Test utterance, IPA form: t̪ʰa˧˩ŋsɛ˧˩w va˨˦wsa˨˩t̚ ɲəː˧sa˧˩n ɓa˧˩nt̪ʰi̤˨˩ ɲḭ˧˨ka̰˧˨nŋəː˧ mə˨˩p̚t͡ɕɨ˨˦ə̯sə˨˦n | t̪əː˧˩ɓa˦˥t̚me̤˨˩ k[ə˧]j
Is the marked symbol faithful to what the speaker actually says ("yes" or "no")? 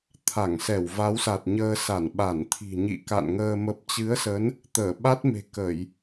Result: no